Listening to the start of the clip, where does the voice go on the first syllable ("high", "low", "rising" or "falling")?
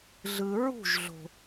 low